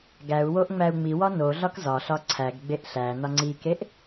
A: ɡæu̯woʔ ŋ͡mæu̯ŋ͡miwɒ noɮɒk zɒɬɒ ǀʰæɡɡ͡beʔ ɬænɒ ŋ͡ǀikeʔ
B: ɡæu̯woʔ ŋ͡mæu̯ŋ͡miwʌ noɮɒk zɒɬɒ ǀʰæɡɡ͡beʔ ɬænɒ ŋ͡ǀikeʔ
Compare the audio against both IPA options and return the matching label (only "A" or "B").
A